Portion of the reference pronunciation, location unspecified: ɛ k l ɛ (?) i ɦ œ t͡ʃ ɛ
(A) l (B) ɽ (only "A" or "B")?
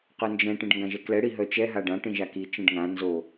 B